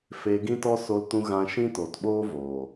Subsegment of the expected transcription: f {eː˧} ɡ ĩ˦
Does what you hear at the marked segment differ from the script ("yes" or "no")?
no